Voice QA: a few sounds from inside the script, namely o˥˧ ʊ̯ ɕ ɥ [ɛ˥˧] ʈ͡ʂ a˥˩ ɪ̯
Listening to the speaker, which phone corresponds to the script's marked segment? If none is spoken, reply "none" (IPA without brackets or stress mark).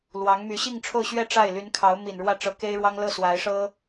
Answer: ɛ˥˧